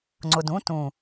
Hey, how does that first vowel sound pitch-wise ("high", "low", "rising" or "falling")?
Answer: low